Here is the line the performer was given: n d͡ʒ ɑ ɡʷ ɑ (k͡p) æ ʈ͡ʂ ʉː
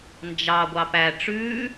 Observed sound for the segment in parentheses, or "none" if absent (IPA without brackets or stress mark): p